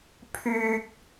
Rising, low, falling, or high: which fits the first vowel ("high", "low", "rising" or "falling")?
high